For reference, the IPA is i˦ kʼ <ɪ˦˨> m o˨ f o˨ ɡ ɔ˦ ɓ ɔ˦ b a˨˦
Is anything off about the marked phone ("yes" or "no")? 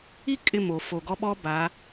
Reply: no